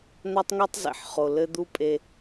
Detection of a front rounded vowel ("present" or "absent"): absent